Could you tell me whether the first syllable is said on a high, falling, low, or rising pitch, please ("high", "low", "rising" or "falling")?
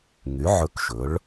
rising